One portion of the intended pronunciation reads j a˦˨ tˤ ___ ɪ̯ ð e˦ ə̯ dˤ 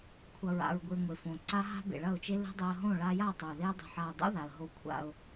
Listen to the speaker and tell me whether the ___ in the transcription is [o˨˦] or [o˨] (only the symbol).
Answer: o˨